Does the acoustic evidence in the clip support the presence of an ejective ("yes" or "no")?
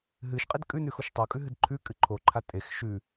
yes